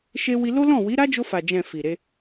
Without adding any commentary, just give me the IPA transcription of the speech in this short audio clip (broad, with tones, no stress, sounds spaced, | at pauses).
ʃ e˧ w i˧ l o˦ l ɔ̃˦˨ w i˨˦ ɾ a˦ d͡ʒ o˧ f a˨ d͡ʒ ɛ̃˨ f i˨ ɾ e˧